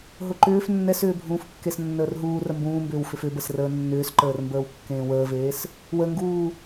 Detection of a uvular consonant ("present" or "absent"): absent